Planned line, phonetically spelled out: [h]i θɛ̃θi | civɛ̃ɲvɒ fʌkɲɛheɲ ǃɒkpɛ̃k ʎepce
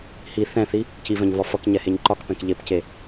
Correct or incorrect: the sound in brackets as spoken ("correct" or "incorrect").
correct